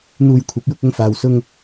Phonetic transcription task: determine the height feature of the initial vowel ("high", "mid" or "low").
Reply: high